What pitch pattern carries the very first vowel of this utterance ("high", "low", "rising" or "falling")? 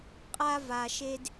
high